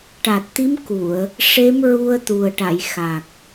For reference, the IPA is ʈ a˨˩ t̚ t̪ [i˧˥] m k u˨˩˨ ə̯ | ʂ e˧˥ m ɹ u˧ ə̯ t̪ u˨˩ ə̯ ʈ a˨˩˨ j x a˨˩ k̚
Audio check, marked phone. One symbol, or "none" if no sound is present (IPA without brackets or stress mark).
i˧˥